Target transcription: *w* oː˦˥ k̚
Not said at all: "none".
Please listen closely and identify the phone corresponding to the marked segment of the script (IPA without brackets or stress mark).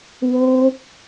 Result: w